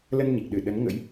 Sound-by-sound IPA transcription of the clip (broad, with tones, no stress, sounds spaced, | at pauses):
l ə˧ n ɲ i˨˩ k̚ ɗ ɨ˧˩ ɗ ə˨˦ n ŋ ə̰˧˥ j